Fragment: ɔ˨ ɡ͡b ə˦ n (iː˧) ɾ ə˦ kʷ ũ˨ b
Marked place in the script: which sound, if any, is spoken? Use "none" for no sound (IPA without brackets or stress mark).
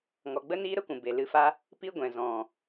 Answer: iː˦